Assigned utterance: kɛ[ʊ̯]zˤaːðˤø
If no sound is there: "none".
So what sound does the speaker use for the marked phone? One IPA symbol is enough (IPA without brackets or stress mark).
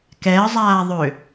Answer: ə̯